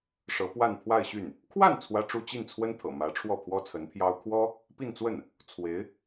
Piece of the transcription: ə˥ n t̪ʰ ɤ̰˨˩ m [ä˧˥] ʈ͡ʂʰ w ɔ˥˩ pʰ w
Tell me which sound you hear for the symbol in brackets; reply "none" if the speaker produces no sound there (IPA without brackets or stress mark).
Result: ä˧˥